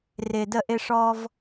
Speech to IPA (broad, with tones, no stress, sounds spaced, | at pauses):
r ɪ˧ d ə˥˧ ʔ ɪ˥ ʂ ɔ˥ v